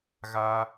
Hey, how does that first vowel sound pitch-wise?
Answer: high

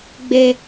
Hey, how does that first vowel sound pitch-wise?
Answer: high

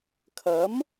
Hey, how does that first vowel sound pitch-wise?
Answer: rising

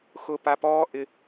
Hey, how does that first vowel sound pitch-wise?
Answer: high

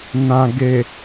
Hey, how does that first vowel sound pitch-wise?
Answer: low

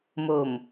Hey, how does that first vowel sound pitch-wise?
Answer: low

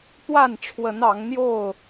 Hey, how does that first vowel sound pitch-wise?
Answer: falling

